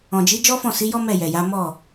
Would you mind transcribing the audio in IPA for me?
ɔ̃˨ d͡ʒ i˨˦ d͡ʒ ɔ˦ f ɔ̃˦˨ s i˨˦ j ɔ˦ m ɛ˦˨ j ɛ˨ j a˨˦ m ɔ˦˨

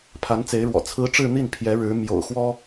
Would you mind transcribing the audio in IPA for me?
pʰ a˧˥ n t͡s e˧˥ ɪ̯ ɻ w ɔ̰˨˩ t͡sʰ ɹ̩˧˥ ʈ͡ʂ ɻ̩˥˧ n̪ i˥˩ n pʰ j ɛ˧˥ ɻ ɻ̩˧˥ m j o̰˨˩ ʊ̯ x w ɔ˥

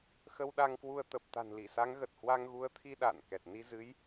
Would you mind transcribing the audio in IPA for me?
x ə˧ w ɗ a˧ ŋ k w u˧ ə̯ t̪ ə˨˩ p̚ t̪ a̤˨˩ n l i˧˩ s a˨˦ ŋ ɣ ə˨˩ t̚ h w a˧ ŋ ɣ u˨˦ ə̯ t̪ʰ i˧ ɗ a̰ː˧˨ n k ɛ˨˩ t̚ n i˧ z ɨ˨˦ j

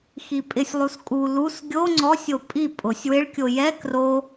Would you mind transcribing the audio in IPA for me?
x i pʼ ɪ sʲ lˠ u s kʼ u l u s ɡʲ o ŋ͡ǀ ɔ sʲ o pʼ i pʼ ʊ sʲ w ɪ ɭ kʲ o j ɛ k r o

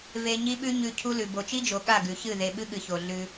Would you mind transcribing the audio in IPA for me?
v e˨ ɲ i˦ ɓ ʉ˦ ɲ ʉ˨ cʰ u˦ l ʉ˨ b o˨ t͡ʃ i˦ d͡ʒ o˨ ɠ a˦˨ ɡ ʉ˨ ç ɨ˦˨ ð e˨ ɓ ɨ˦ ɠ ɨ˨ ç o˨ ɮ ʉ˦

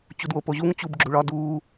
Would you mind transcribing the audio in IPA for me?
t͡ɕ u d w o p o ʑ u ŋ t͡ɕ u b ɡ͡ǁ u ɭ ɒ d uː

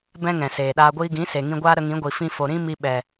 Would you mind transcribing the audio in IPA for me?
b ɛ̃˦ ŋ ɛ̃˨ s eː˨ ɗ aː˧ ɡʷ iː˧ ɡ ĩ˨˦ s e˨ ŋ ĩ˧ ɡʷ aː˦ ɾ ə˧ ŋ ĩ˨˦ ɡʷ i˨ f ĩ˧ f o˨ ɾ ĩ˦ m i˧ ɓ ɛ˨

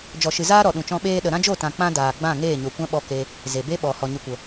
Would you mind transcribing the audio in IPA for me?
d͡ʒ ɔ˨ ʃ ɨ˨ z aː˦ ɾ ɔ˨ ɗ ũ˨ t͡ʃ ɔ̃˧ ɓ eː˦ ɗ ə˨ ɾ ã˦ d͡ʒ o˦˨ t ã˨ k͡p ã˦ d aː˨ ɡ͡b ã˦˨ ŋ eː˦˨ ɲ o˨ kʷ ã˦ ɓ ɔ˧ k e˧ | z e˨ b e˦ ɓ ɔ˨ h ɔ˨ ɲ ɨ˨ kʷ ə˨

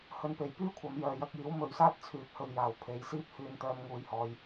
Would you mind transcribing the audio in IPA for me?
h ɵ˨˧ n p e˨˩ j p yː˥ kʷʰ ɐ˨˧ m j œː˨ j ɐ˨˥ k̚ j iː˨˥ w m ɵ˨ ɥ s aː˥ t̚ t͡sʰ yː˨ p̚ h ɵ˨ ɥ j aː˨˩ w pʰ e˨˧ j s iː˥ p̚ h yː˧ n t̪ œː˧ m ŋ uː˨˧ j h ɔː˨˧ j

